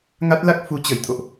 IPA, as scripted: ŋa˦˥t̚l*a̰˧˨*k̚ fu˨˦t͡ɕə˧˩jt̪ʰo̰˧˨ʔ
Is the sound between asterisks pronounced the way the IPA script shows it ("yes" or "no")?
no